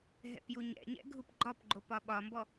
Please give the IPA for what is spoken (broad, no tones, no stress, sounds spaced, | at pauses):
ɦ ɛ̰ p j u ɲ ɛ̰ ɲ ɛ̰ ɡʱ u p ɡ͡ǃ ɒ p ɡ͡ǃ o p ɒ ɓ ɒ m b ɔ